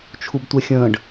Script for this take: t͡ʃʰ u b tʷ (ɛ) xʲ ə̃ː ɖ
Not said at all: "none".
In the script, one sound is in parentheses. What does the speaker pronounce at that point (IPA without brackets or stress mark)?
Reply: ɛ